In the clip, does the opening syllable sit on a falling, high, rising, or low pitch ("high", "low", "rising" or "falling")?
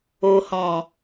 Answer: low